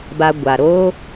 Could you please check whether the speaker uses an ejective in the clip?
no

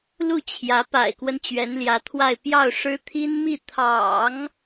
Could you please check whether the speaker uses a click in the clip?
no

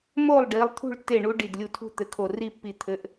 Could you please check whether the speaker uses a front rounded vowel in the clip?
no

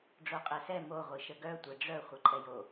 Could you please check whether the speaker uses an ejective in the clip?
yes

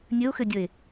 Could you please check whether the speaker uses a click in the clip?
no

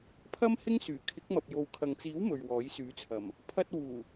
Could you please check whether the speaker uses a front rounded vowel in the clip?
yes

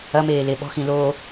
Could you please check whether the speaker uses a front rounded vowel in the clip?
no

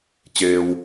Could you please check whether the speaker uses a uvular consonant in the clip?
no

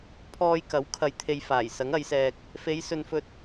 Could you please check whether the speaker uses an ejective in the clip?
no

